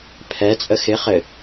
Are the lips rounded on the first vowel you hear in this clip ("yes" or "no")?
no